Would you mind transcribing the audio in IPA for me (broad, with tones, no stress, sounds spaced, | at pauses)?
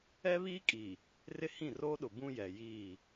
ɛ˦ β iː˦ kʼ iː˨ | r ɪ˦ h ĩ˦˨ r oː˦ ɗ ʊ˨ b ũ˦ j ɛ˨ j iː˦˨